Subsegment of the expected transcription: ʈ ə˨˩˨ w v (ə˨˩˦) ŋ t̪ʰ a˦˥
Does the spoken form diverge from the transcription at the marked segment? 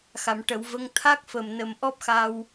yes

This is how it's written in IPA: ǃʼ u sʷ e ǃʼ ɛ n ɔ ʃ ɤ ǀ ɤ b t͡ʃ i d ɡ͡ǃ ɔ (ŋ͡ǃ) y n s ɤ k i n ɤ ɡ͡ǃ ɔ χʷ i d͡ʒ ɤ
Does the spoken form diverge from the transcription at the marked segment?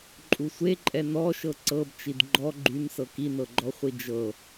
yes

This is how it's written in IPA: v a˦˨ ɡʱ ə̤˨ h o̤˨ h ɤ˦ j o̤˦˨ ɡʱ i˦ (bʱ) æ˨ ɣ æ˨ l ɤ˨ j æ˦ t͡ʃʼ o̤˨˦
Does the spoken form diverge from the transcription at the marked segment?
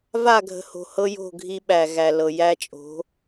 yes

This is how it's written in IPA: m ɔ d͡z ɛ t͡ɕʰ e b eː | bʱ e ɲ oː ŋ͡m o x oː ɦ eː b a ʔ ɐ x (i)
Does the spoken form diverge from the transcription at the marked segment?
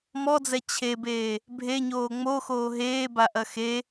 yes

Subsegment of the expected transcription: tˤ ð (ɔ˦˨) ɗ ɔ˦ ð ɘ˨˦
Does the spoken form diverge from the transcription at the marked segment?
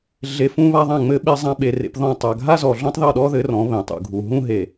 no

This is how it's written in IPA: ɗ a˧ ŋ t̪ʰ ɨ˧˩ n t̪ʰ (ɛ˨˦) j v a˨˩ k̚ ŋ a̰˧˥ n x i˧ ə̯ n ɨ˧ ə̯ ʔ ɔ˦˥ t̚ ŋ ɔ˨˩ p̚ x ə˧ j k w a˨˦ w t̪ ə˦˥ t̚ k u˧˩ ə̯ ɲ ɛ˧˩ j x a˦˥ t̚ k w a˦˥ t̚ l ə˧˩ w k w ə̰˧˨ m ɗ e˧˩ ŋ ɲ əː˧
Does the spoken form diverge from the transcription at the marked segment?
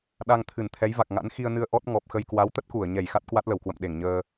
no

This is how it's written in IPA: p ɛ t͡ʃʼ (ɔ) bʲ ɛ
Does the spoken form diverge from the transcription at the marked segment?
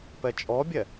no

